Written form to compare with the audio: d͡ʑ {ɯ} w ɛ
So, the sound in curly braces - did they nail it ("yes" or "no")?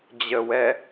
no